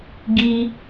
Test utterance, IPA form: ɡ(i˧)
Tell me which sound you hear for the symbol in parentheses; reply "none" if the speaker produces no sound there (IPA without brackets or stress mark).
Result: i˧